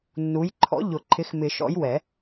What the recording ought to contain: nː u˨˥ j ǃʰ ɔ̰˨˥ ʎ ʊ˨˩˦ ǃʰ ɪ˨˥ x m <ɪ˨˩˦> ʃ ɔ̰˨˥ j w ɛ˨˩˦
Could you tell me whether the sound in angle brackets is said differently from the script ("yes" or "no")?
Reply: no